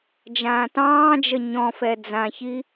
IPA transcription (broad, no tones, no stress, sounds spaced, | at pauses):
d͡ʒ ãː t ɑ̃ː d͡ʒ ə ɲ ɔ̃ f ɛ d͡z ã ç i